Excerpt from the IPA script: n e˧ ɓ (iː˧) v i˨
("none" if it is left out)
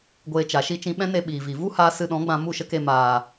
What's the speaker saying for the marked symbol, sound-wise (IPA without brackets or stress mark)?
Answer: iː˨